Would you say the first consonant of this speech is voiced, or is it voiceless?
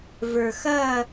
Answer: voiced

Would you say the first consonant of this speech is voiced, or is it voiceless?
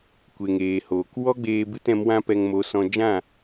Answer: voiceless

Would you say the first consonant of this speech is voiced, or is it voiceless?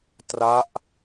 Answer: voiceless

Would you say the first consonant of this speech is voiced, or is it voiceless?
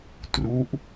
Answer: voiceless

